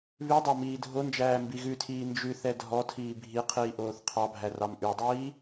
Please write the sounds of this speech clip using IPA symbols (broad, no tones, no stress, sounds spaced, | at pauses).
β ʉ dˤ ɑ m iː dʱ o n d͡ʒ æː m b i ɣ ʉ tʰ iː n d͡ʒ ʉ θ ɛ dʱ ɔ tʰ iː bʱ i qʰ iː ʔ oː θ qʰ ɑ bʱ æ r ɑ m ʔ ʉ dˤ iː